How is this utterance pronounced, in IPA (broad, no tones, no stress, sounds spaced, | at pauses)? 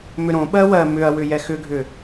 m ʏ ɾ õ ɓ ɜ w ɜ m ʏ ɐ̯ w ʏ j ɛ x ʏ ɡʱ ʏ